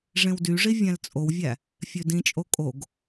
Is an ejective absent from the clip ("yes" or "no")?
no